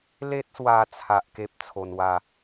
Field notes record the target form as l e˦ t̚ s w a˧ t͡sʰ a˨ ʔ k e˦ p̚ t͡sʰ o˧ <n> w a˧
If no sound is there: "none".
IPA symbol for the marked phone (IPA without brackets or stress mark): n